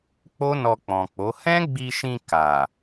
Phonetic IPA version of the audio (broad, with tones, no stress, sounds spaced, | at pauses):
k͡p o˦ n ɔ˧ k͡p ɔ̃˨ k͡p o˨˦ h ɛ̃˦ ɡ͡b i˧ ʃ ĩ˧ k a˨